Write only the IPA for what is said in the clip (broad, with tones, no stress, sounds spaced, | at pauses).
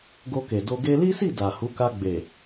ɡ o˧ k e˨ d o˧ ɡ e˧ l i˦ s i˦˨ d a˨ h u˨˦ k a˧ ɡ͡b e˨